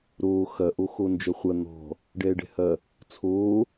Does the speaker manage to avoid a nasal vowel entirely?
yes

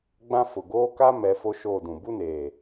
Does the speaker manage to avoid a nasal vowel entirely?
no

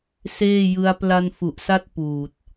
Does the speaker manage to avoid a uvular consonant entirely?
yes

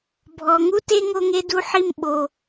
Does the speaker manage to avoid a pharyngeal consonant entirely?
no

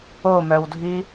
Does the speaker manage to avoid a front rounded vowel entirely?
no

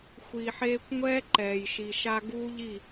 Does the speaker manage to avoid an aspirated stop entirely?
yes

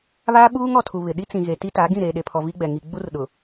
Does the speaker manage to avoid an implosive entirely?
no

